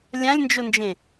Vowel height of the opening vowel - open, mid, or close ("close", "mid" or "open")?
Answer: open